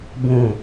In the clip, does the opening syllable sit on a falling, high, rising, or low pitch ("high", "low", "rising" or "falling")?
low